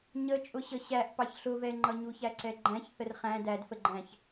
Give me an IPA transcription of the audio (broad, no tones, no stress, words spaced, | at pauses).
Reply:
ɲə t͡ʃʼʊɕəɕæʔ pɑçɬʊvɛŋ͡ǃʌ ɲuçæǀɛɡ͡ǃæ̃ç θərχæ̃ dædfəɡ͡ǃæ̃ç